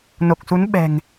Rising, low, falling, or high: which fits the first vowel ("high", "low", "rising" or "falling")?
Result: low